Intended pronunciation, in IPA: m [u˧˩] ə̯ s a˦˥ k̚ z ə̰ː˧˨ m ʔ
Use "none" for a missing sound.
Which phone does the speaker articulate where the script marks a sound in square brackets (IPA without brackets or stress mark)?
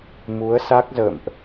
u˨˦